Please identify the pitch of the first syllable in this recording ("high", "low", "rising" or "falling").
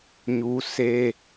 high